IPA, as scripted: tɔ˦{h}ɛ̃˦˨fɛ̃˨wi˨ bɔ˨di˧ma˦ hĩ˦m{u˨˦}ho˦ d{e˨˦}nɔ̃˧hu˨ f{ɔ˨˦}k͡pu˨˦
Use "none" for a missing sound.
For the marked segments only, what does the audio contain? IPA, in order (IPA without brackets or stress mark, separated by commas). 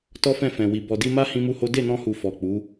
f, u˦, e˦˨, ɔ˨